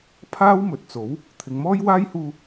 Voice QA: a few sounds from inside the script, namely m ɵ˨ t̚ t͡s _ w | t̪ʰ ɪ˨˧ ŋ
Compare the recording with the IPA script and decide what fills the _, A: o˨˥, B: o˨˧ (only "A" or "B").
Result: A